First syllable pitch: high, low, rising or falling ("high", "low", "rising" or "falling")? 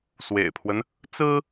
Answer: low